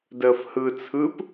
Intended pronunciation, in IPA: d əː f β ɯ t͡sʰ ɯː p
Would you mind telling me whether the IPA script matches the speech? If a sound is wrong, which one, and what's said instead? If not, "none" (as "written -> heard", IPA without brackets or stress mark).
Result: β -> h